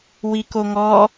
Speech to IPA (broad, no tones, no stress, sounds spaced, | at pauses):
w i k o ŋ ɔ